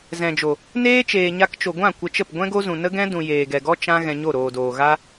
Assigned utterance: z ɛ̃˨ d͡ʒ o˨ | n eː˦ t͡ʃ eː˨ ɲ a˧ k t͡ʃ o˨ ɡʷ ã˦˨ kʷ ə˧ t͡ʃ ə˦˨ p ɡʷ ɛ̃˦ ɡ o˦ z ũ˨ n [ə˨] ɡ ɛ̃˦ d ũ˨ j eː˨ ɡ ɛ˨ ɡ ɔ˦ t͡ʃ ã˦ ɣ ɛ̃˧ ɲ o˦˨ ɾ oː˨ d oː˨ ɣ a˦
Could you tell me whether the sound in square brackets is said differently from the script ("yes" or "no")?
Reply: yes